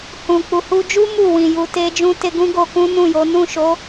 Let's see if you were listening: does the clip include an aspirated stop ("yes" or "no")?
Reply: no